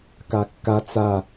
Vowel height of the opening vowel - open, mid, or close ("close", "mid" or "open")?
open